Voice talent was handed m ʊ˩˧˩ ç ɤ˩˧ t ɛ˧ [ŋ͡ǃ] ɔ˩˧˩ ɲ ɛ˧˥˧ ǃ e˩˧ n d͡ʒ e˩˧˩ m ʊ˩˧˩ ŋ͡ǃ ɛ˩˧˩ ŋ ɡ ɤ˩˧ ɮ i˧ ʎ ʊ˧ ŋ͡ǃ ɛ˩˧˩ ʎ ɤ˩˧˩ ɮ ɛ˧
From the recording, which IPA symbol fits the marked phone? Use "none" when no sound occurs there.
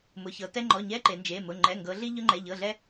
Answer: ŋ͡ǃ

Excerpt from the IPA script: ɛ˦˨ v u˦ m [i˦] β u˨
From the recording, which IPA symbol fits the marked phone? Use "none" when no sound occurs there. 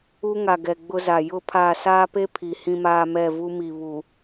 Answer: i˨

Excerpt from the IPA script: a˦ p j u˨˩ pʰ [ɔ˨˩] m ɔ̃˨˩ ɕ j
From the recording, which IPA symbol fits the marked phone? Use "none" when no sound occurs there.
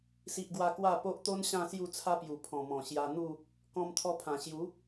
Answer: ɔ̃˨˩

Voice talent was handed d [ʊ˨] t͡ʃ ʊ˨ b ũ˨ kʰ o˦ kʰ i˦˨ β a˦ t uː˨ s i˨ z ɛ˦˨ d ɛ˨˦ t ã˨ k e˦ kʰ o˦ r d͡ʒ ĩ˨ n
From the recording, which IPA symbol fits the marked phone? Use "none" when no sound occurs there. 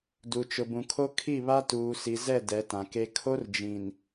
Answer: u˨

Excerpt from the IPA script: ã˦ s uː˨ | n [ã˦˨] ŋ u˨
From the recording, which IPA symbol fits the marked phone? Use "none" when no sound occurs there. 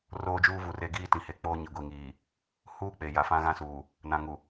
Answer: ã˨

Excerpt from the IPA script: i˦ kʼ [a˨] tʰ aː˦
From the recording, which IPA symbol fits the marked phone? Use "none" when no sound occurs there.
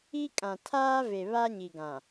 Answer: ã˨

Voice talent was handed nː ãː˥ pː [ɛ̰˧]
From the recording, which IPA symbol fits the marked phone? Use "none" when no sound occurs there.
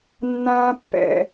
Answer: ɛ̰˧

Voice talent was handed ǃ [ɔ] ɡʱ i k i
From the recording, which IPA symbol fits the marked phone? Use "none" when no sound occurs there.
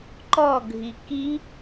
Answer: ɔ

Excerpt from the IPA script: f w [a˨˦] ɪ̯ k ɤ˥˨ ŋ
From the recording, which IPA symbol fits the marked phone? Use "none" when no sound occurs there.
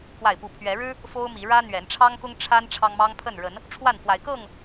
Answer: a˨˦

